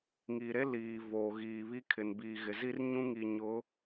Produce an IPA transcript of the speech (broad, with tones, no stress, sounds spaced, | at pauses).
ŋ i˨ ɾ e˦ l iː˨ v oː˨ ɣ iː˨ β i˦ kʰ ɪ˨ n b iː˨ ɣ ɪ˨ z i˦ r ɲ ũ˦ ŋ i˨ ɲ ʊ˨˦